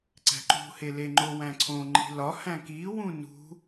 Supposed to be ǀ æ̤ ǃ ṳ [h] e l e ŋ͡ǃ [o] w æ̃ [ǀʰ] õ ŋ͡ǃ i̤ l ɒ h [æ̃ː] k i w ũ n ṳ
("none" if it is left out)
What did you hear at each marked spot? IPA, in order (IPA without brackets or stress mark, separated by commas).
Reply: h, o, ǀʰ, æ̃